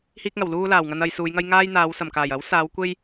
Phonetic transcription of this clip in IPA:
hiː˥k̚ŋɐ˨˩wluː˥laː˨˩w ŋɐ˧n ɐ˧jsuː˨˧jŋɐ˥j ŋaː˥jn̪aː˨˧wsɐ˨˩mkaː˨˩j ɐ˨˥wsaː˨˧w kʷe˥j

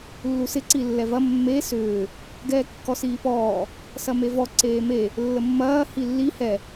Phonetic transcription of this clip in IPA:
lːusɪ ǀilːɛvɐ mːe sʏː | ɡɛːkːɔsiːpɔː | sɐmevɔ ǀeːme | lːəmːɐː hilːi hɛ

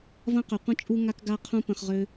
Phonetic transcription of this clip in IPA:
vɐ̃˦qø˨qʷə̃˦t͡ʃʼu˦ ŋa˦kɡa˦qʰũ˦ pə̃˧χʁø˦

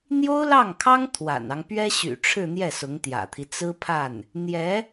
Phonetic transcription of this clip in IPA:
n̪jo˥ʊ̯lɑ˥˩ŋkʰɑ˥ŋ t̪ʰwa̰˨˩nɑ˦ŋ pɥɛ˥ɕy̰˨˩ʈ͡ʂʰɻ̩˥˧ n̪jɛ˥˩sʊ˧˥ŋt̪jä̰˨˩t̪ʰi˦ t͡sɹ̩˥pʰa˥˩n | n̪jɛ˧˥

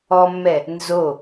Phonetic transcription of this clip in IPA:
ɔmːɛ | nzo

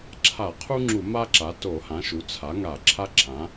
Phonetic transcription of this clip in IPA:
ǁʰa˧˩˧qʰu˥ŋ͡ǁu˧˩˧ ma˥ǁa˩˥ to˧˩˧hã˩˥ ʃu˩˥ t͡sʰa˩˥ŋa˧˩˧ ǁʰa˥ǁʰã˩˥

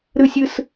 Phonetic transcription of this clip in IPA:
ɾɯ˧˩sʲɯ˧˩s

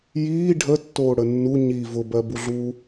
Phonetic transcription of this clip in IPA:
jiː ɖʱətːoːɽə nːu ɲi vʊbɜbuɮuː

